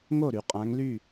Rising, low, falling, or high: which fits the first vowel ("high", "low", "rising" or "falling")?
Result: falling